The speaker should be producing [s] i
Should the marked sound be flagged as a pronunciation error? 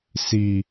no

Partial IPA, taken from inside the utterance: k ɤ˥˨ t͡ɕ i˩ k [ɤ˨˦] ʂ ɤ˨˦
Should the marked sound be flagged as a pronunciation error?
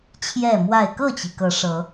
no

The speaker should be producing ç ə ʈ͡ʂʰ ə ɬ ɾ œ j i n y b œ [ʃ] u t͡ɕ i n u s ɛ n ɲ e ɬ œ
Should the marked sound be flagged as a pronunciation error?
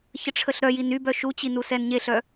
no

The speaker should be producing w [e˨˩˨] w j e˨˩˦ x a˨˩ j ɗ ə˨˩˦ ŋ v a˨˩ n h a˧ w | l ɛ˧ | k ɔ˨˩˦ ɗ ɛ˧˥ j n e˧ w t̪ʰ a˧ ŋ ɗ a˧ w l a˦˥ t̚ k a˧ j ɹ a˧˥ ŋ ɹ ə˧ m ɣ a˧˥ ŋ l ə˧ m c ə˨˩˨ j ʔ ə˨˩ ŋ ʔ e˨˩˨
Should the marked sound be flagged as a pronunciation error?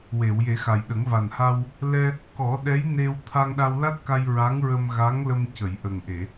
no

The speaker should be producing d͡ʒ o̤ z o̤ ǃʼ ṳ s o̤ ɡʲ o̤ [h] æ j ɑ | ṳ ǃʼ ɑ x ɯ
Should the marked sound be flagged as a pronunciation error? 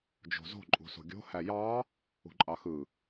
no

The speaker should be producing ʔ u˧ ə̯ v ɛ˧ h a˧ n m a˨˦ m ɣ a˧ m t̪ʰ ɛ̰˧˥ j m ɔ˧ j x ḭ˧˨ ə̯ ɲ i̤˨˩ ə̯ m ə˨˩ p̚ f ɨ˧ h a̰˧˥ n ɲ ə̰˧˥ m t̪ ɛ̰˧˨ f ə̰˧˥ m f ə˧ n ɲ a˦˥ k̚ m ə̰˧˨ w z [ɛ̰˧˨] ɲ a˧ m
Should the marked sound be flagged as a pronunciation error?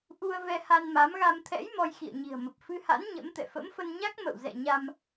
no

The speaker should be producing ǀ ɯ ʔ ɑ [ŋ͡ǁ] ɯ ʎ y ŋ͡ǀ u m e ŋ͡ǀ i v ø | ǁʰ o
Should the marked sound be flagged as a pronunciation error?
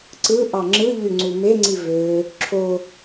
no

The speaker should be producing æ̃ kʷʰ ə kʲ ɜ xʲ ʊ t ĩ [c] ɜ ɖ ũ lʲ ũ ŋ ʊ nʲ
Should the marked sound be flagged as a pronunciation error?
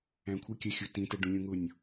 yes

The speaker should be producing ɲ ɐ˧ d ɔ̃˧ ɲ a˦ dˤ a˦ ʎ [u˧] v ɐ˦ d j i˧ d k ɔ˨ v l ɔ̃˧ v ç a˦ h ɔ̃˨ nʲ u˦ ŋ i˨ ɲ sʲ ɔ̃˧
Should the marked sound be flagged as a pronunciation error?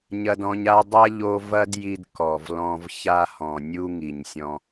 yes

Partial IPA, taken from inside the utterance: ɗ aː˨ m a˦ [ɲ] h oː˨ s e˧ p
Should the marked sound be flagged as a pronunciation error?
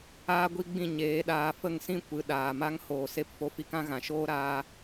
yes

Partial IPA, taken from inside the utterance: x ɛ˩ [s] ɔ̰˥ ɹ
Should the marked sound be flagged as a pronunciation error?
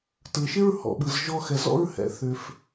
yes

